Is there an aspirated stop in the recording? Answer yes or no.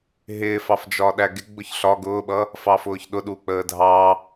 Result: no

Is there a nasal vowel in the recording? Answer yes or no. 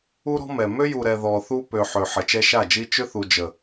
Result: no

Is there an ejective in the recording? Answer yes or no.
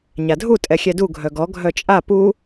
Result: yes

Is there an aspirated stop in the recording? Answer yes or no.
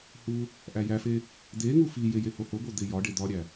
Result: no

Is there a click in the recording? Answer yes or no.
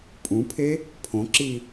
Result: yes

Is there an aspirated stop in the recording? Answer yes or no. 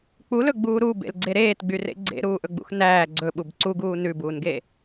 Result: no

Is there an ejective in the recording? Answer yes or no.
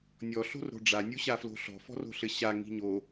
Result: no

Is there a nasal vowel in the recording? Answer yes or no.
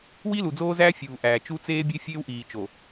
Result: no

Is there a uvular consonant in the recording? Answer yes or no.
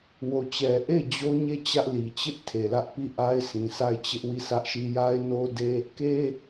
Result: no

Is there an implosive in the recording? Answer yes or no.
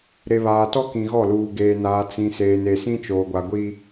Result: no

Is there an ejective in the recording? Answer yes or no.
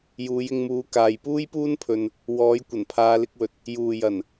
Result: no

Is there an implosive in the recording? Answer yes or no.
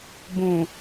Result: no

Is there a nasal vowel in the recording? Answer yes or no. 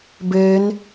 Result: no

